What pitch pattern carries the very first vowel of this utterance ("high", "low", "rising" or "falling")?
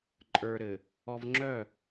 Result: low